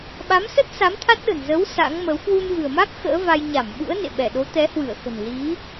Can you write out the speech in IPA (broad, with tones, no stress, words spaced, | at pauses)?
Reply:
ɓa˨˦msə˦˥t̚ sa˨˦mt̪ʰa˦˥t̚ɗə̤˨˩n zə˨˦w sa̰˧˥ŋmə˨˦w kwu˧nvɨ̤˨˩ə̯ma˦˥k̚ xə̰ː˧˥va˧j ɲa˧˩mɓṵ˧˥ə̯ nḛ˧˨ɓɛ˧˩ɗo˨˦ t̪ɛ˨˦hwɨ˧˩ə̯xə̤˨˩n li˨˦